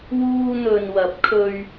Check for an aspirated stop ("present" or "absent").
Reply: present